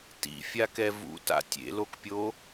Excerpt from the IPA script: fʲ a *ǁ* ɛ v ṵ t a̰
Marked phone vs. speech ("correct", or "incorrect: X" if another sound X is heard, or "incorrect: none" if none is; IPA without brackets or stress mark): incorrect: k